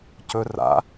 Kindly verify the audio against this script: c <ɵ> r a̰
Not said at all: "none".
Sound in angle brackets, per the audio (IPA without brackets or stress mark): ɵ